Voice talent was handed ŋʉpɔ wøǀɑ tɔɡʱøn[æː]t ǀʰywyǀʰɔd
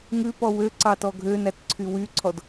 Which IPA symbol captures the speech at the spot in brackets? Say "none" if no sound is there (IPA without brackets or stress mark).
æ